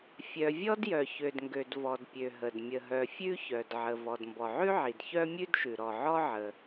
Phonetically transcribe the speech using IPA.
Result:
fʲ œ˩ vʲ ɔ˥ d j œ˩ ç ø˩ d ŋ ɡ ø˩ d v ɔ˩ d pʲ ø˩ ɦ ə˩ d mʲ ə˩ ɦ œ˩ fʲ ʉ˥ ç œ˩ d ʕ ə˩ v ɔ˩ d m b ɔ˩ ʕ ʉ˥ ʕ i˩ d ç œ˥ mʲ ʉ˥ d ʃ ʉ˩ ɾ ɔ˩ ʕ ɔ˥ ʕ ə˩

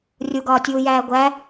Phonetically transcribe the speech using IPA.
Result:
rʲ u ɡ ɒː tʲ uː j æː ɡʷ æ

